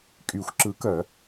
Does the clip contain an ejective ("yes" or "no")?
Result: yes